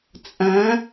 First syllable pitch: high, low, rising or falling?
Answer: rising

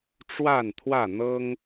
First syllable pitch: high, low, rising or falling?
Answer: falling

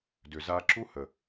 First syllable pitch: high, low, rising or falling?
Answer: low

